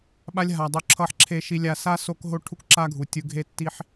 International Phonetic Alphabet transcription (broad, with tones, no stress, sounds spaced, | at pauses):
ɓ a˦ lʲ ɦ a˨ dˤ o˦ ǁʰ ʌ˦ ħ ǁʰ e˦ ʃ i˦ lʲ a˦ s a˥ s o˦ k ɦ o˥ ʈʰ u˥ k ǁ a˥ ɡʱ u˨ tʲ ɯ˦ ɡʱ e˦ tː i˦ ħ